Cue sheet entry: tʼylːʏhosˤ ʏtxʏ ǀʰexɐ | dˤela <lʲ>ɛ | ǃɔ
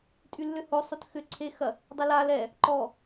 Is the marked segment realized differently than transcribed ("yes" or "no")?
yes